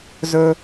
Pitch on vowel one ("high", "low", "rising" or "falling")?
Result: high